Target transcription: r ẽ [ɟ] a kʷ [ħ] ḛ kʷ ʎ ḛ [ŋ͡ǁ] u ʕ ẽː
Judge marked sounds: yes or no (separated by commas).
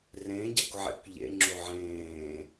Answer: yes, no, yes